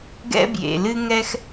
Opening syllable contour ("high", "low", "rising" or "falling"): high